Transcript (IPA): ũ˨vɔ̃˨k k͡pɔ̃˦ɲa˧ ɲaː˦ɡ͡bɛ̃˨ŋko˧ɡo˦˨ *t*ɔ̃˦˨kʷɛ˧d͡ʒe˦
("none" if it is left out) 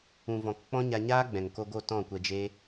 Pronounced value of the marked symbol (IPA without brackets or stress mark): t